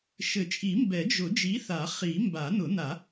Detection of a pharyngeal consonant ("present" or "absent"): absent